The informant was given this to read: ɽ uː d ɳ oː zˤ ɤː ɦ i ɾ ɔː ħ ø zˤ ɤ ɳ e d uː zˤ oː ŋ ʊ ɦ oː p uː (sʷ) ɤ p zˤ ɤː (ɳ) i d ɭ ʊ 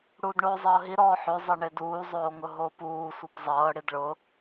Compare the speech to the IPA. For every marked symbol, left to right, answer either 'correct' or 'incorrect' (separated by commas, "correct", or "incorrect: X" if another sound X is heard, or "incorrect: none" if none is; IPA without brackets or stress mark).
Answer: correct, incorrect: ɽ